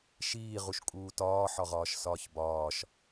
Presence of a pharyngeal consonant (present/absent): present